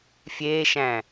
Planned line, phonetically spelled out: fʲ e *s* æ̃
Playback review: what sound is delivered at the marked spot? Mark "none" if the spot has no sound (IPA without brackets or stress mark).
ʃ